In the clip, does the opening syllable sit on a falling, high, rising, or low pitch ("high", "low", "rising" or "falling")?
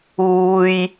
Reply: low